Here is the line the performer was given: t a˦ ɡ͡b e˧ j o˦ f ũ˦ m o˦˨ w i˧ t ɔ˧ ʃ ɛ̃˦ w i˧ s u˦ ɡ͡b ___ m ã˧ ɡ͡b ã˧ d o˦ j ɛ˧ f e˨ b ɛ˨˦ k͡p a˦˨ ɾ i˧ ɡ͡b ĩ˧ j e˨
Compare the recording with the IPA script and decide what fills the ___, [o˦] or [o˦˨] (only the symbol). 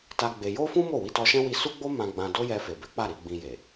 o˦